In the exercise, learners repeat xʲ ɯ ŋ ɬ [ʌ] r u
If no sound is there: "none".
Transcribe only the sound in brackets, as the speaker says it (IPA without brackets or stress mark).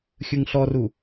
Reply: ɔ